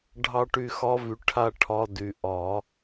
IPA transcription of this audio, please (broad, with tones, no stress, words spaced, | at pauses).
ɖʱɑ˥ʈy˥˨xɒ˥vy˨ ʈʰa˥ʈʰɒ˧˥˧dy˨ ʔɒ˨˩˦